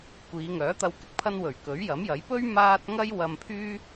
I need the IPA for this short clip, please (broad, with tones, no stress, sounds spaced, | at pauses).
kʷ iː˨˧ ŋ œː˨˥ t̪ ɐ˧ w k ɪ˨ k̚ pʰ ɐ˧ n w ɵ˨˩ ɥ k ɵ˨˥ ɥ j ɐ˨˥ m j ɐ˨˥ j p ɵ˥ ɥ m aː˥ t̚ ŋ ɐ˥ j w ɐ˧ m pʰ yː˥